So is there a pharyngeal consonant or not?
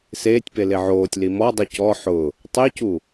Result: yes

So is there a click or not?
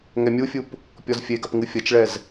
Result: no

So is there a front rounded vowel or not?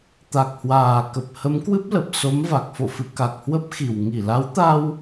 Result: no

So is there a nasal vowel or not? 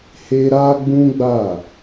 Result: yes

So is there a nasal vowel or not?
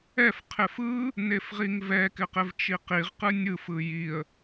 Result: no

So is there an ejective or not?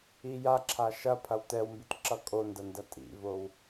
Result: yes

